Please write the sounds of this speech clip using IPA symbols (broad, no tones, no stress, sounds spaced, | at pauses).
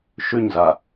ʃ ʉ ɲ z a